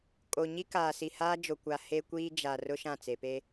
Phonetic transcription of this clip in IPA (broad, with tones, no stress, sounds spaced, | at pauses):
kʼ o˨ ɲ i˦ k aː˨ s i˨ h aː˦ d͡ʒ o˨ kʷ a˨ h e˦ kʷ iː˦ d͡ʒ a˨ r ʊ˦ ʃ ã˦˨ t͡s e˨ p e˦